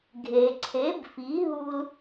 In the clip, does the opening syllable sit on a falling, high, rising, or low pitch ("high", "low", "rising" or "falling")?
low